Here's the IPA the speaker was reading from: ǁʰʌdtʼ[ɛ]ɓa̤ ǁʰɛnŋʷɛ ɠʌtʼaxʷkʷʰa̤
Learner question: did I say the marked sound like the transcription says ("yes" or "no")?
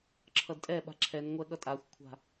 yes